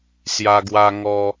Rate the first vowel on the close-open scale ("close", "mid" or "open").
open